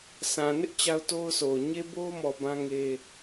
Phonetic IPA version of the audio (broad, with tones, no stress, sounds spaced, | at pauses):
s ã˨ n ɪ˦ ʔ t͡ɕ a˦ ʊ̯ t o˦ ʊ̯ sʰ o˨ ʊ̯ ɲ e˦ b o˦ m ɔ˨ b ã˦ ŋ e˦